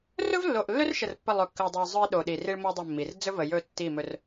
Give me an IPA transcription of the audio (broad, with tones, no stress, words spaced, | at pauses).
rɵ˦vlːo˨ʔlːɵ˦rʃə˨r pːə˦˨lˠɵ˨kːə˨u̯dˤɵ˨i̯ zˤɵ˦i̯ɗo˨ɗi˨ ri˦ɭmo˦dˤə˦˨mːi˨r d͡zɵ˦və˨ jɵ˦˨tːi˦˨mɵ˦r